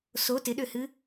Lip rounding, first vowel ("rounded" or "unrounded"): rounded